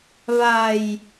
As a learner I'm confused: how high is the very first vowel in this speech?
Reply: low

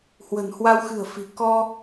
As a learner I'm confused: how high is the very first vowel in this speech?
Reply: mid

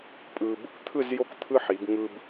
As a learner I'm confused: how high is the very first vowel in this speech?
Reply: high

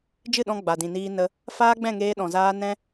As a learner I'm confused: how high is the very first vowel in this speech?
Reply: high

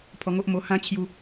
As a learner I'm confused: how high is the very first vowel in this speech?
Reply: mid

